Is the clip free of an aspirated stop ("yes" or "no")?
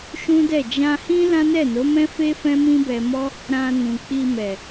yes